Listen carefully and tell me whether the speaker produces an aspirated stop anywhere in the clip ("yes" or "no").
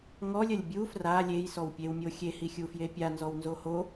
no